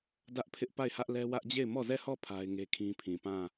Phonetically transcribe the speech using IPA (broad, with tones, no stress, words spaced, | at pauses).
dä˦ʔpʰɪ˦ʔpa˦˨ɪ̯hä˦ʔ lɛ˦ wä˦ʔd͡ʑe˦˨ɪ̯ mɔ˦˨zɛ˦˨hɔ˦˨ pʰa˦ɪ̯ ŋe˦kʰĩ˦pʰĩ˨ pã˦˨